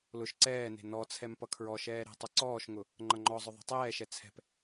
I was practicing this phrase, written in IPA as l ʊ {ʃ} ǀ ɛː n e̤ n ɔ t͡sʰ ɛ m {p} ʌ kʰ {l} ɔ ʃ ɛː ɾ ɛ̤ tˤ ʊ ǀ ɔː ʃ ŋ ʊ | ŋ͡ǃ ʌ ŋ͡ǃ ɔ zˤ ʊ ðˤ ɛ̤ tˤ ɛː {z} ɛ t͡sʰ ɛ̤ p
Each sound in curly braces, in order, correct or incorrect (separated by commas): correct, correct, incorrect, incorrect